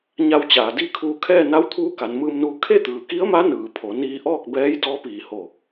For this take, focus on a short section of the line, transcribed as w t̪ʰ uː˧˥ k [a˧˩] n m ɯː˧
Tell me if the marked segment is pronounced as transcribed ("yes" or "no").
no